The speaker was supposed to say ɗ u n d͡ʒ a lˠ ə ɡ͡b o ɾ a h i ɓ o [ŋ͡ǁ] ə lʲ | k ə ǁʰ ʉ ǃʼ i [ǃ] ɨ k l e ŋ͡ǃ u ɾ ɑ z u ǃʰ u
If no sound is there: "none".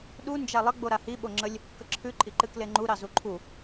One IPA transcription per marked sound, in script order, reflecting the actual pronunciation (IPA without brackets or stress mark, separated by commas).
ŋ͡ǁ, ǃ